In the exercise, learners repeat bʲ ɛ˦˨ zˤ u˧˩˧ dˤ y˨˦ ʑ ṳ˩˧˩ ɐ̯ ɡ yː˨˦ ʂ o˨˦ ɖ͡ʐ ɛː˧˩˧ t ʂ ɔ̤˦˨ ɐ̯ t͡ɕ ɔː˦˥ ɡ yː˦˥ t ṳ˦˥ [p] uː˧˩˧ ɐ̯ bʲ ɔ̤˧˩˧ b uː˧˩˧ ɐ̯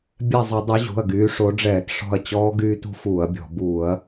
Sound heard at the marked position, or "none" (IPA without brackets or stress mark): f